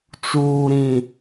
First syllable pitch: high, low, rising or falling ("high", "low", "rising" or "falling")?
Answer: low